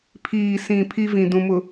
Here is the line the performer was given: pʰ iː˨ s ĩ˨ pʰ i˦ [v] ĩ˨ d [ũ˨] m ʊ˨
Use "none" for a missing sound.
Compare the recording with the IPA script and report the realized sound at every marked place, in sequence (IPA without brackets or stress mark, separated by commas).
v, ũ˨